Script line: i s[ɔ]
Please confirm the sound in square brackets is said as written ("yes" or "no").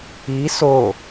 no